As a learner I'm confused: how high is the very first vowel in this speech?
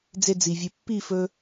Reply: mid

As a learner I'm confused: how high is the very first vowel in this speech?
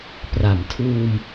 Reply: low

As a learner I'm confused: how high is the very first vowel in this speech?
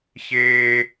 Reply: mid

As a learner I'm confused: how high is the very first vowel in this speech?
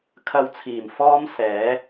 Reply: low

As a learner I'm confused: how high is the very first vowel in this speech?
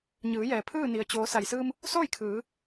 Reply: high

